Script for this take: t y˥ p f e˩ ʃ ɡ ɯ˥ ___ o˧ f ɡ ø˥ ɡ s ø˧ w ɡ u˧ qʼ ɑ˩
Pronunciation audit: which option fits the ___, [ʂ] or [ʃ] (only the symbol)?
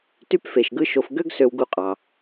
ʃ